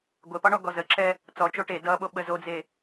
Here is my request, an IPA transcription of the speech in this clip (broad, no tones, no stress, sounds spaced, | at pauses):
ɡʷ e p ɒ ɳ ɔ ɡ ɔ z ə ǁ ɛ | t͡s ɔ t͡ʃ o ʈ e d ʌ ɓ o ɓ ə z o d͡z e